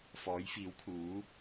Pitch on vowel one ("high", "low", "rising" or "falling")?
rising